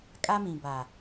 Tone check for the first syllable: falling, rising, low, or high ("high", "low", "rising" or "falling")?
high